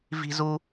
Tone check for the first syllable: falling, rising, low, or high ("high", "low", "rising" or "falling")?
high